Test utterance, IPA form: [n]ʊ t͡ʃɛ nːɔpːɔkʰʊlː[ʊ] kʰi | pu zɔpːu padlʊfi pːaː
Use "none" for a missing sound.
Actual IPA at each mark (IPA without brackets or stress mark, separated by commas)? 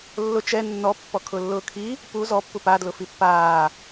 lː, ʊː